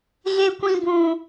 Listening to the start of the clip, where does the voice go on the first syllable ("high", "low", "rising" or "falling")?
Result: high